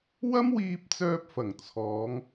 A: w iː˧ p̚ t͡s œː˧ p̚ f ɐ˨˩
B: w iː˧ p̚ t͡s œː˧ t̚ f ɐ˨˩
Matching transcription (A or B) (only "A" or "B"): A